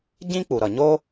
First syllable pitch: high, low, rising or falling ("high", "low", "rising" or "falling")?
high